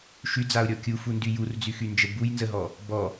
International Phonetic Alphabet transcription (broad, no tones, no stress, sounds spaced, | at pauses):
ʃ y d͡z a ʊ̯ ɾʲ ɔ kʲ u f u n d y j u r d͡z y x y n d͡ʒ ə b u j n z ə ɦ ɔ | b ɔ